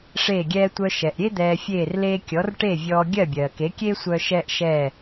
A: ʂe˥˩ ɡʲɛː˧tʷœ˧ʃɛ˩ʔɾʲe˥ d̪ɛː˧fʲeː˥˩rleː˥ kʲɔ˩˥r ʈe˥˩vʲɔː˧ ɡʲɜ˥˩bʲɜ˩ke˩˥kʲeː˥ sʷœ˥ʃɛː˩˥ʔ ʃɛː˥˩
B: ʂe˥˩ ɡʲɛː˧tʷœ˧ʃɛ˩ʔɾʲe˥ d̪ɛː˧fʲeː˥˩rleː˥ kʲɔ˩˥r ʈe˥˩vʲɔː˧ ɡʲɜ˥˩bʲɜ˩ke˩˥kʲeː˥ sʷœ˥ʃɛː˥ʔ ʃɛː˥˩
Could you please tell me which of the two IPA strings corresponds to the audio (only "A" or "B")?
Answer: B